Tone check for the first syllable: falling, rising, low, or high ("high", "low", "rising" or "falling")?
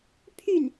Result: falling